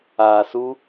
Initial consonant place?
alveolar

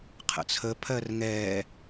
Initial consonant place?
uvular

